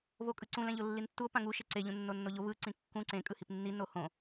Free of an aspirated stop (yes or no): yes